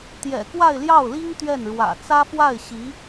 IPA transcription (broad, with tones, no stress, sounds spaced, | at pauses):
t̪ j ɛ̰˨˩ k w a˥˧ ɪ̯ l j ɑ˥˩ ʊ̯ l i˥ ŋ t̪ ɥ ɛ˥˩ n ɻ w ä̰˨˩ t͡s ä˥ f w a˥˩ ɪ̯ ɕ i˧˥